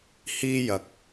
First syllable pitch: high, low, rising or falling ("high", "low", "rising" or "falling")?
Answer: high